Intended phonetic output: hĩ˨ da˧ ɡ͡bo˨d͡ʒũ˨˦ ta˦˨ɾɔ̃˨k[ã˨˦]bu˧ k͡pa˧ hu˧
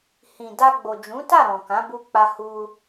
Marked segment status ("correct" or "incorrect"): correct